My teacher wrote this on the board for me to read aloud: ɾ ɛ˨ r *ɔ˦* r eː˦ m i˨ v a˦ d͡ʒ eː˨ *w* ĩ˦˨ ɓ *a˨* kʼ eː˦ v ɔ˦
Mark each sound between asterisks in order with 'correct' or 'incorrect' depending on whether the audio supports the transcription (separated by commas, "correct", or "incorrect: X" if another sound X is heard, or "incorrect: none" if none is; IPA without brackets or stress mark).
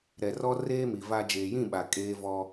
correct, incorrect: j, correct